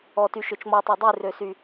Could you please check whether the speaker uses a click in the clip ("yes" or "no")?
no